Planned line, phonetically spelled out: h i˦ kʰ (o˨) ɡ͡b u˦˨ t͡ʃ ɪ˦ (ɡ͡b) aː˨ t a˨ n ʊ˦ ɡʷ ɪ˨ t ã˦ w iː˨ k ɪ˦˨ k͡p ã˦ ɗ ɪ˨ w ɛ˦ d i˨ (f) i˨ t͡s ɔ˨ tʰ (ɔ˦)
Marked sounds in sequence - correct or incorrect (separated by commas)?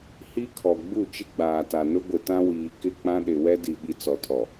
incorrect, correct, incorrect, incorrect